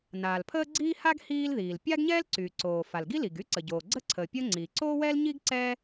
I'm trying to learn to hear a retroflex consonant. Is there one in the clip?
no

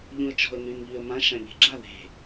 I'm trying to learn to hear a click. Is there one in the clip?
yes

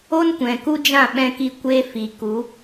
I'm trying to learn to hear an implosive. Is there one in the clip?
yes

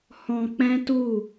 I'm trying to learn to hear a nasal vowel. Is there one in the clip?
yes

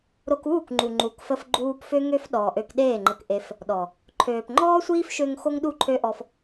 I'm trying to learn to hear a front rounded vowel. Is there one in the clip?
yes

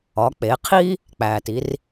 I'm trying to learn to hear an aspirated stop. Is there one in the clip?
yes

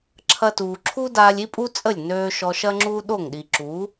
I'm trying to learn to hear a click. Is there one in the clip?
yes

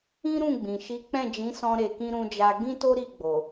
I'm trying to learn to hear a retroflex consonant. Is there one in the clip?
no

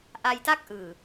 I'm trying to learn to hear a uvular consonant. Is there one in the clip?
no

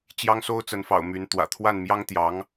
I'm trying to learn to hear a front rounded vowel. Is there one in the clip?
yes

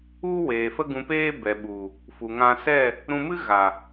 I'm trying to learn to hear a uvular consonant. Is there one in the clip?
no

